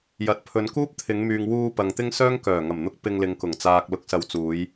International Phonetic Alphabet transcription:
j ɐ˨ t̚ pʰ ɵ˨˧ n k uː˥ p̚ t̪ʰ ɪ˨˧ ŋ m yː˨ ŋ w uː˧ p ɐ˨ ŋ t̪ ɪ˥ ŋ s œː˥ ŋ k œː˨˩ ŋ ɐ˨˩ m n̪ ʊ˧ k̚ p ɪ˧ ŋ l ɪ˨˧ ŋ k ʊ˨˩ ŋ t͡s aː˨ k̚ l ʊ˨˥ k̚ s ɐ˨˧ w t͡s uː˨˧ j

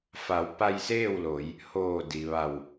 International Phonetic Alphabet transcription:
f a˩˧ w p a˧ j s eː˥˨ w l o˩˧ j | h oː˧˩ d i˩ ʋ a˧˩ w

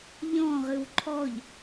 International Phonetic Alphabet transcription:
ʎ ɔ̃ ʁ ɨ w ǃʰ ɔ ʎ

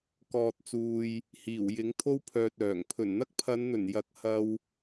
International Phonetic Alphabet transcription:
k ɔː˨ t̚ t͡s uː˨ j | h iː˨˩ w j ɪ˨˥ ŋ t̪ʰ o˥ w pʰ œː˨ t̚ œː˨˩ ŋ pʰ ɵ˨˩ n n̪ ɐ˥ k̚ pʰ ɐ˨˧ n n̪ ɵ˨˩ n j ɐ˧ k̚ h ɐ˧ w

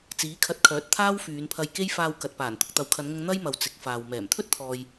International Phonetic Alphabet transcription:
t͡s iː˨˥ kʰ ɐ˧ t̚ kʰ œː˨˥ t̚ t̪ʰ aː˥ w f yː˨˧ n pʰ ɐ˧ j k e˥ j f aː˧ w k ɐ˨ t̚ p aː˨˩ n t̪ ʊ˨ k̚ t̪ ɐ˨ w kʰ ɐ˨˧ n ŋ ʊ˧ ŋ n̪ ɐ˥ j m ɐ˨ w t͡s ɪ˨˥ k̚ f aː˨ w m ɛː˨˩ m t̪ʰ ɵ˥ t̚ t̪ʰ ɔː˨ j

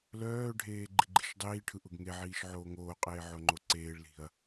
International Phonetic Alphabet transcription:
l œː ɖʱ eː ɡ͡ǃ i ɡ͡ǃ i̤ ʃ dˤ iː ʈʰ ɯ ʔ ʊ ɡ ŋ e ʕ iː ʃ ʕ oː ŋ oː qʼ eː ʕ o ŋ͡ǃ o ǀ eː ɭ l i̤ ɐ̯

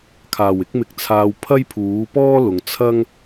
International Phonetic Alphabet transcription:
kʰ aː˨˩ w ɪ˧ k̚ m ɪ˨ k̚ t͡sʰ aː˨ w pʰ ɐ˥ j pʰ uː˨˥ p ɔː˥ l ʊ˨ ŋ t͡sʰ ɐ˥ ŋ

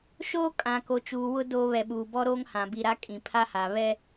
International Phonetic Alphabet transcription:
ʃ oː˦ kʼ ã˨ k o˨ t͡ʃ uː˨ w ʊ˦ d oː˦ β ɛ˨ ɓ uː˨ b ɔ˦ ɾ oː˦ ŋ h ã˨ b i˨ ɾ a˦ kʼ ĩ˨ pʰ a˦ h a˨ β ɛ˦

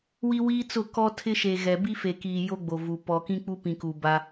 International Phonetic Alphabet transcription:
w i˦ w iː˦ t͡s ʊ˦˨ k ɔ˦ tʰ ɪ˦ ʃ e˨ ɣ ɛ˨ b i˦ f e˨ k iː˨ j o˦ ɡ͡b o˨ v u˨ p ɔ˨ k ĩ˦ k͡p u˦ p ĩ˨ k u˨ b a˦

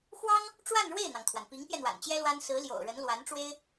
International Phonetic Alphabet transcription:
x w ɑ˥ ŋ | ʈ͡ʂ w a˥˧ n ɻ w e˥˩ ɪ̯ n̪ ɑ˩ ŋ t̪ʰ w a˩ n p i˧˥ ŋ p j ɛ˧ n̪ w a̰˨˩ n t͡ɕ j ɛ˥ l w a˥ n s ɹ̩˧˥ l j o̰˨˩ ʊ̯ ɻ ə˧˥ n l w a˧˥ n ʈ͡ʂ w e˥ ɪ̯

